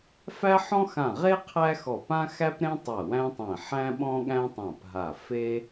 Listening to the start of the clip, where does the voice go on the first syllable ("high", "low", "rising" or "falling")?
high